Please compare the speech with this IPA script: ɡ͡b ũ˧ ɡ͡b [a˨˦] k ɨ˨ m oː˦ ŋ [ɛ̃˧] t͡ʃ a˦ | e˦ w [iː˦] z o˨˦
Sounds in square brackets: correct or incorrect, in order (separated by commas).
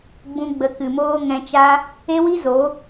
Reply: incorrect, correct, incorrect